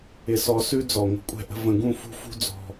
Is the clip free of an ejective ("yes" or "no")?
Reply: no